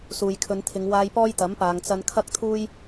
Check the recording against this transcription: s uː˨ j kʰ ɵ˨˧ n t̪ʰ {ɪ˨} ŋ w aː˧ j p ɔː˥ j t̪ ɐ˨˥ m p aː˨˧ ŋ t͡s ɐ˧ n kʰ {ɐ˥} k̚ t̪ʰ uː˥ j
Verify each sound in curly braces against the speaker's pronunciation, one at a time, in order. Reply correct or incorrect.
incorrect: ɪ˨˧, correct

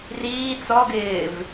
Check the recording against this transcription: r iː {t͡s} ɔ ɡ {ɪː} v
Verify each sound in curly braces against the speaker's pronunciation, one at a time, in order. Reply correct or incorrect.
correct, correct

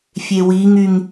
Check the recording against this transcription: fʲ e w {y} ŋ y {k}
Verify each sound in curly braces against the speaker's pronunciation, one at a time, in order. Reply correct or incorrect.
incorrect: i, incorrect: ŋ

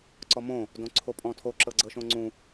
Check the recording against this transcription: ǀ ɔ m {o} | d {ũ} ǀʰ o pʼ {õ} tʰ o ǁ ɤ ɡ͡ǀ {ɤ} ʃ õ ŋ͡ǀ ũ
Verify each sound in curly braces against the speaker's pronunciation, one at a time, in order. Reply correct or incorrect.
incorrect: õ, incorrect: õ, incorrect: ɔ̃, correct

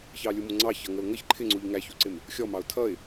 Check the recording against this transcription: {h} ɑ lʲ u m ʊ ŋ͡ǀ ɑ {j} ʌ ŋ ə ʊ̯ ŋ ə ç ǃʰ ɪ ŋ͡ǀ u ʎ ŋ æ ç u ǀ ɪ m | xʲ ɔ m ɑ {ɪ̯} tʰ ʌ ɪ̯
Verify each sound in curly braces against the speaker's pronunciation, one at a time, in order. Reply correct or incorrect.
incorrect: ç, incorrect: ç, incorrect: ʊ̯

